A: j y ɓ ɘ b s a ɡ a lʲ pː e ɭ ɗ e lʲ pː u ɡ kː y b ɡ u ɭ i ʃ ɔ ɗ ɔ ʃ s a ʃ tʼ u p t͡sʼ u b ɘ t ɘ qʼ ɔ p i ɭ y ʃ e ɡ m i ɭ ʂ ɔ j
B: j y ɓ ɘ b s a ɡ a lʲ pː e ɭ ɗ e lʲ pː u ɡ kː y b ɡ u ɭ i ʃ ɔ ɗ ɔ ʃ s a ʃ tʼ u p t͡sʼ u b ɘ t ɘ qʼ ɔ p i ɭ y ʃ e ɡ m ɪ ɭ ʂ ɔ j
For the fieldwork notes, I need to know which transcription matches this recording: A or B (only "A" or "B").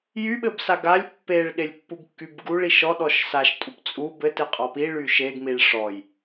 A